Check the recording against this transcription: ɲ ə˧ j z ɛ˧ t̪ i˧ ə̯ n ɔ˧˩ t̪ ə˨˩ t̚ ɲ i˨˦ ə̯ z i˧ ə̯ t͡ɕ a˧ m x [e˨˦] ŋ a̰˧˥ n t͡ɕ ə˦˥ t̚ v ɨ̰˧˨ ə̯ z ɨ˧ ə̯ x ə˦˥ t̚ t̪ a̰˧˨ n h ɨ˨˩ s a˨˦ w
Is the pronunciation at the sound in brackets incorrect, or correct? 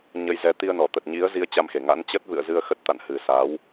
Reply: incorrect